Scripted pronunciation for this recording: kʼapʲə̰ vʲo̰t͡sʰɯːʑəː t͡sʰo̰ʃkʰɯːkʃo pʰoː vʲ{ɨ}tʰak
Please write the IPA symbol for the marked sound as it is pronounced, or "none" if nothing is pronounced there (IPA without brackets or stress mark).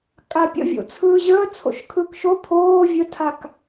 ə